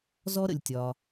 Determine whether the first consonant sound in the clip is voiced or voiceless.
voiced